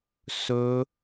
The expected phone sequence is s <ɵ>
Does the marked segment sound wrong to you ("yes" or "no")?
no